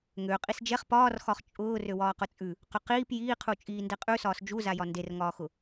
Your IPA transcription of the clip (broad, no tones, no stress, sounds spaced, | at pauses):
ŋ ø qʼ i s d͡ʒ ɛ χ p ɒː r x ɒ χ t͡ʃʼ ʊː r ø w ɒː q ʊ t͡sʼ ʉ | q ʊ q iː p j iː qʰ u t͡ʃʼ iː n d ɛ qʼ ʉ s ɒː s d͡ʒ u z a j ɒ n d e r ŋ ɒː x ʊ